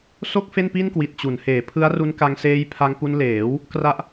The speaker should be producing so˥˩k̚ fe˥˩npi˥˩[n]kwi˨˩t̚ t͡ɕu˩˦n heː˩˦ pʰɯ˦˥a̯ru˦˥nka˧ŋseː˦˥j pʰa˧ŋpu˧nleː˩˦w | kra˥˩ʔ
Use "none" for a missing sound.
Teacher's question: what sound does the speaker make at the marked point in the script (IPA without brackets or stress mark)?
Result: n